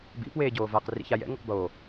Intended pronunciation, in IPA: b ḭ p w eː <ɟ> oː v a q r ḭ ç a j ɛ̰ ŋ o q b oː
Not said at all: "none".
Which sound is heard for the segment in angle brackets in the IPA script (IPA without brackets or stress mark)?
ɟ